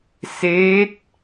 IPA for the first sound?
s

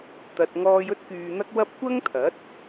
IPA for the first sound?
t̪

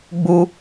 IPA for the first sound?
ɡ͡b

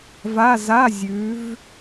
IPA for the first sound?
v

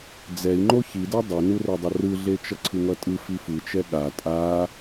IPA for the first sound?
d͡z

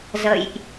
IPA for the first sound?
z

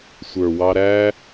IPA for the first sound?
sʷ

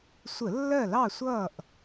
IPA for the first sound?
sʷ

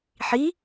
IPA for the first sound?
ħ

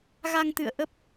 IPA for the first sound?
ɣ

